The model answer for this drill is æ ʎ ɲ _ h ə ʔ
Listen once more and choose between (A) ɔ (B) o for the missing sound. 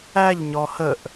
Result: A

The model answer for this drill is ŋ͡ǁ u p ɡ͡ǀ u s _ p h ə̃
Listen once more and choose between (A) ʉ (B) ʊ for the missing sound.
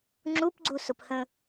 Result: B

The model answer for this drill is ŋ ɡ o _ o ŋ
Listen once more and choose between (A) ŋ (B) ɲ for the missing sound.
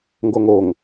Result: A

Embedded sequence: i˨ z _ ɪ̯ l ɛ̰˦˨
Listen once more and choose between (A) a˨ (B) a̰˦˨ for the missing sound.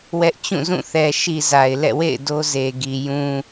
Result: A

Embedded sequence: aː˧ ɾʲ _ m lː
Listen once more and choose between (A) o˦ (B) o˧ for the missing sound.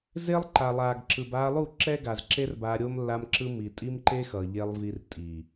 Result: B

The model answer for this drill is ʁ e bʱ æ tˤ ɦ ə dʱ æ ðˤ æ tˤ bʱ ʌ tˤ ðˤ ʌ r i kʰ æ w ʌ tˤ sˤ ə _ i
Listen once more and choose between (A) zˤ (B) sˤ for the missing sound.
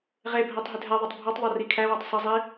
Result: A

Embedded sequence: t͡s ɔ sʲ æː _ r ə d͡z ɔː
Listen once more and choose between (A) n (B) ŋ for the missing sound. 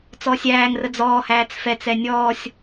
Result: B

